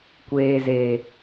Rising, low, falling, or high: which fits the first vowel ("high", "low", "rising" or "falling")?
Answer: low